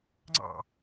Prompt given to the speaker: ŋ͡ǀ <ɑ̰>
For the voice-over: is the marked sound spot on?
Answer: yes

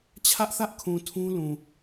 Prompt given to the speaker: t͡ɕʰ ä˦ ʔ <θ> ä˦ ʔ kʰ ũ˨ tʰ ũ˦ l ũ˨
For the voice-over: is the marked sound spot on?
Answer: yes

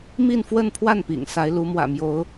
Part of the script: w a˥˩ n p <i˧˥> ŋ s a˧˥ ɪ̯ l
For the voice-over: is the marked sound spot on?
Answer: no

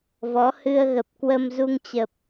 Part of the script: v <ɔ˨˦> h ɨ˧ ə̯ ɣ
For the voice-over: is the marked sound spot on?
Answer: yes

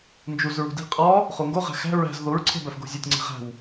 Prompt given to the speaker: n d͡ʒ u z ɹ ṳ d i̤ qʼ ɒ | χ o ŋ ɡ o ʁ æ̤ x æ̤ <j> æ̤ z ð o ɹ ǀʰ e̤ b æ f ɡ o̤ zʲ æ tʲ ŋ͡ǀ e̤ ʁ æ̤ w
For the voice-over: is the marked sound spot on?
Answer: no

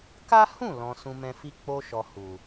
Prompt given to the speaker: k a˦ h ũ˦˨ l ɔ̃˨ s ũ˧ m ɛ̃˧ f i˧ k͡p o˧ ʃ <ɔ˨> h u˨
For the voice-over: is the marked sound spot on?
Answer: yes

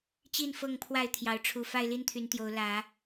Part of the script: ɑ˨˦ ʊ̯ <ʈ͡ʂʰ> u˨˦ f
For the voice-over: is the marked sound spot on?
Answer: yes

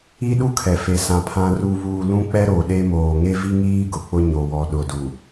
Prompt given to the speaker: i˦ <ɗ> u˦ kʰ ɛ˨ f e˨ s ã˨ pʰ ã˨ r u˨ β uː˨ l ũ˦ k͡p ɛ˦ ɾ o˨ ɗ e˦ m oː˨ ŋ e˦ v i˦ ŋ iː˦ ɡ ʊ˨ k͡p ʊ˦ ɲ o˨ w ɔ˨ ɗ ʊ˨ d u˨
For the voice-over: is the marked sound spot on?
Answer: yes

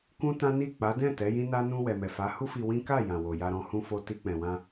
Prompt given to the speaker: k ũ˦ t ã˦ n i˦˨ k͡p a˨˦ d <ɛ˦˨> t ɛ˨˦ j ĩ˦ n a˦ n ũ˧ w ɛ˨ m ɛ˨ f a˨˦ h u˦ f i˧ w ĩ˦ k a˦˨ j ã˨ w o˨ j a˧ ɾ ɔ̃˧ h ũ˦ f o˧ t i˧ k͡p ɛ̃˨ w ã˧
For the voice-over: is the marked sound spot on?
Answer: no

